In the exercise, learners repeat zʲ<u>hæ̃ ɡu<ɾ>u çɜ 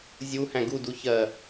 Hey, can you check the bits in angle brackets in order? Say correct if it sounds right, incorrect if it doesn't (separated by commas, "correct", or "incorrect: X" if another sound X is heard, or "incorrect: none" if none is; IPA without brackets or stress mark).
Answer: correct, incorrect: d